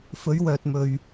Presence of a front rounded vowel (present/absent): present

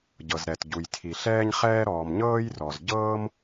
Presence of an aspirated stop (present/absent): present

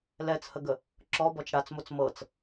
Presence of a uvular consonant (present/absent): absent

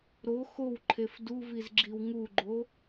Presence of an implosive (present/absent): absent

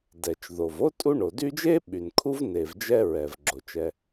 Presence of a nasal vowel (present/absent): absent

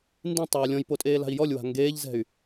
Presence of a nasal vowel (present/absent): present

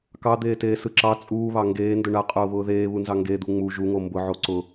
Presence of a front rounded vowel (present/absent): absent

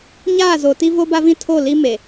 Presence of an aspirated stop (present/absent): present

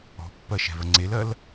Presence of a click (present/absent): present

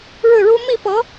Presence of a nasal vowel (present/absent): absent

